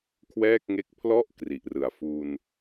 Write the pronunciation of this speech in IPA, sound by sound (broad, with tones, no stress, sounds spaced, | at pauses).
kʰ w ɛː˥˩ k̚ ŋ e˦˥ k̚ pʰ l ɔ˥˩ ʔ k r i˨˩ ʔ r ɯ˨˩ a̯ f u˧ n